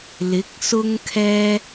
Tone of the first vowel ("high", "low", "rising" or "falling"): rising